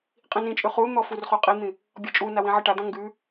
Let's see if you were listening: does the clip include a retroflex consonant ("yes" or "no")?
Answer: yes